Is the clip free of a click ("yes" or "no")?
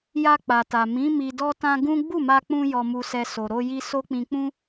yes